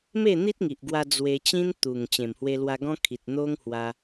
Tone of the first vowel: falling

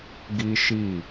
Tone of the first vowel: high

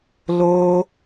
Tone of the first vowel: high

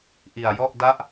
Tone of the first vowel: low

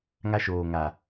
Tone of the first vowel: high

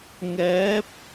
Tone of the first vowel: rising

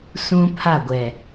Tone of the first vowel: high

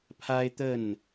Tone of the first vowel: high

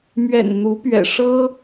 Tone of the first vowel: low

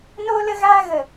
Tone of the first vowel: high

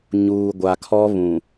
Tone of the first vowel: low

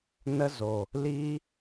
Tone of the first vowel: high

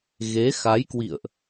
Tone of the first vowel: rising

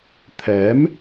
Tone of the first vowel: rising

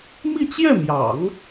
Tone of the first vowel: falling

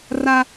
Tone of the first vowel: high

